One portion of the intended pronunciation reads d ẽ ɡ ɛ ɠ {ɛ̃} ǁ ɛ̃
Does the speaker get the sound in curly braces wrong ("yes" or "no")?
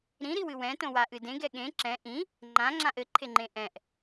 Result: yes